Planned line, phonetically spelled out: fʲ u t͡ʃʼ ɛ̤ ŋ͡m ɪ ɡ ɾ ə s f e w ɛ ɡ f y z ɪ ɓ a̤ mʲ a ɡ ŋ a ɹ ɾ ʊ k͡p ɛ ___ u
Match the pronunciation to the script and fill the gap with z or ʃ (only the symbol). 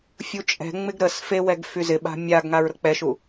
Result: ʃ